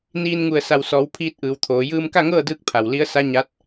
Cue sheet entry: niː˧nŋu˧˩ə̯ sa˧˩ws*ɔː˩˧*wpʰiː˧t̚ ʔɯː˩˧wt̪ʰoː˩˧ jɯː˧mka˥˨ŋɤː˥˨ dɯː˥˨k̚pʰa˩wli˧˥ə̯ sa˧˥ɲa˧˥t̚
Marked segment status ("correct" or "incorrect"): correct